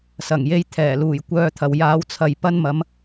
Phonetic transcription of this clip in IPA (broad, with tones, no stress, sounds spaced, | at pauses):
s ɐ˨˩ ŋ j e˧ j t̪ʰ ɛː˨˩ l uː˨˩ j kʷ œː˧ t̪ʰ ɐ˨ w j aː˨˧ w t͡sʰ ɐ˨ j p ɐ˥ n m ɐ˨˥ m